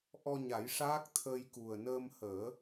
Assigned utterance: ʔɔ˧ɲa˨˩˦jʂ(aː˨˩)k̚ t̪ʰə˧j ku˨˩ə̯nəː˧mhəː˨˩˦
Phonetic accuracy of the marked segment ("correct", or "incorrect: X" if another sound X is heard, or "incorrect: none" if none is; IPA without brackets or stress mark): incorrect: aː˦˥